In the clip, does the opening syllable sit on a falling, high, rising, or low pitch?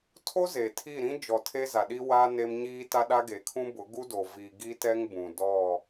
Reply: high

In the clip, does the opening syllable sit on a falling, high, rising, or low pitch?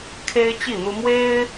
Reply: high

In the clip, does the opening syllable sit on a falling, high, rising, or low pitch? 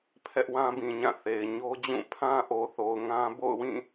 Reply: high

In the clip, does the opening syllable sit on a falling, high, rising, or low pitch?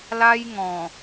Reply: high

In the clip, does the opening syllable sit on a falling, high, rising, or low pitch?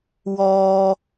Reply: low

